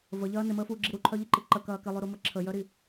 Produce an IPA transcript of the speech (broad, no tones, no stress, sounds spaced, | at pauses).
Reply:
v ə ʎ ɐː n ɪ m əː f uː ɡ͡ǁ i ɾ u ǃʰ œ ʎ ɪ ǃ i ǃ ə k ɐː k ɪ lˠ y ɾ u m ə ǁʰ ə j œ ɾ i